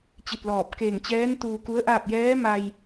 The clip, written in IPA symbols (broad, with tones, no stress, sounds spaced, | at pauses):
t͡ɕ i˧˩ t̚ l ɔː˧˩ p̚ k eː˧˩ ŋ t͡ɕ ɛː˧˥ n t̪ uː˧ k u˧˥ ə̯ ʔ aː˥˨ p̚ j ɛː˧˥ m a˧ j